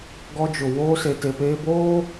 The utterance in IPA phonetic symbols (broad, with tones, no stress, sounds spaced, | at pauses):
ɡ ɔ˦ d͡ʒ ʊ˨ w oː˦ s e˨ t e˨ p eː˦ b oː˦